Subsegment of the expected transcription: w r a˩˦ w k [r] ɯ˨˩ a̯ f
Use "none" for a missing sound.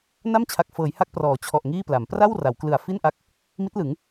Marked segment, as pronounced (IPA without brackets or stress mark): l